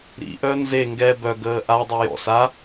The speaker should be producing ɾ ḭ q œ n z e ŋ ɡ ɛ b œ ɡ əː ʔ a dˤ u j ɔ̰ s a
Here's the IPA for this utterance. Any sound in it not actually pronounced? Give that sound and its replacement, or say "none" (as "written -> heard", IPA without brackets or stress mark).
q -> ʔ